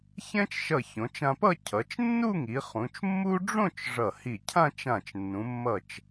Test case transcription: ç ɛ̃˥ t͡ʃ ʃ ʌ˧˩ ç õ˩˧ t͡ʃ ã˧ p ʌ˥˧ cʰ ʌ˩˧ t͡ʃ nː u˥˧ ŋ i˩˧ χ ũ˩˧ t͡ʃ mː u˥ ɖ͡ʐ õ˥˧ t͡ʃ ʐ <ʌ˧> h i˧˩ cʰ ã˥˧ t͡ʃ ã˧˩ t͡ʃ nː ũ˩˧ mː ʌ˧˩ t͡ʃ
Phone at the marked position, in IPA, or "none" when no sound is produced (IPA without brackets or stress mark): ʌ˧˩